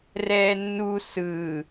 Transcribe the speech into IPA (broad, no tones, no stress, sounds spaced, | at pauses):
r ɛː nː u s ɯː